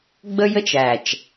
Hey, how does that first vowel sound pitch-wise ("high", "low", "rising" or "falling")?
high